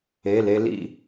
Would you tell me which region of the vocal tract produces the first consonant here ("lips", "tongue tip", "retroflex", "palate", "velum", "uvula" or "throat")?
tongue tip